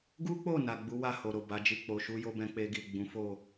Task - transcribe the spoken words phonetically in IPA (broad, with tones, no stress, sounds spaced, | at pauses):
ɡ u˦ k͡p o˦˨ n a˨ ɡ͡b u˨˦ w a˦˨ h o˨ ɾ o˨ b a˨˦ d͡ʒ i˦˨ k͡p o˨ ʃ u˧ j o˦ b ɛ̃˧ k͡p e˧ ɡ i˨ ɡ͡b ũ˨˦ f o˦˨